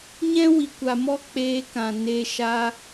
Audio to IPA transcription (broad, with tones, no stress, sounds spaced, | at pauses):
ɲ ɛ̃˦ w i˨ kʷ a˨ m ɔ˦ k͡p eː˧ k ã˨ n e˧ ʃ a˦